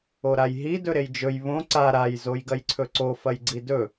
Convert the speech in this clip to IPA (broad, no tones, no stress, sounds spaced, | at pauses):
o ɾ a j ɦ i d ɵ ɾ e j d͡ʒ ɵ j β õ ǀ a ɾ a j z o j ɡ ɐ j ǀʰ ɵ ǀ o f ɐ j ɡ͡ǀ i d ɵ